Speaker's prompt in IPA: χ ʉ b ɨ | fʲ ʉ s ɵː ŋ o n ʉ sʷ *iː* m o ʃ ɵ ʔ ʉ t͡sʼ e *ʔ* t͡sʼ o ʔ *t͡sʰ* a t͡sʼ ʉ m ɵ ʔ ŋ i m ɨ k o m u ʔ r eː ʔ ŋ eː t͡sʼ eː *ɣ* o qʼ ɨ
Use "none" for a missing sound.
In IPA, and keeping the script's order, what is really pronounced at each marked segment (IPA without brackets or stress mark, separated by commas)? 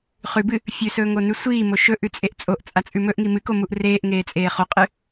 iː, ʔ, t͡sʼ, χ